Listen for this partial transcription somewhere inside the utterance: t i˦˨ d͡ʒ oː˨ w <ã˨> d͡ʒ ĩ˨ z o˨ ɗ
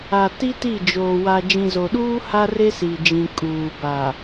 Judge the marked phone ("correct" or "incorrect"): incorrect